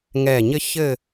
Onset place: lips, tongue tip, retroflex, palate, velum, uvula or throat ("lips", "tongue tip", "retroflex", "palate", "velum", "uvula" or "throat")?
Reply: velum